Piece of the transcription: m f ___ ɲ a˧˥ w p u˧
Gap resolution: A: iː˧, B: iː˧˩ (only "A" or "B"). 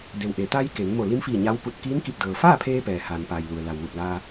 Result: B